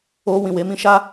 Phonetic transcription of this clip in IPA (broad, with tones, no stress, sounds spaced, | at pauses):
o˧ w ĩ˨ w e˨˦ m ĩ˧ ʃ a˦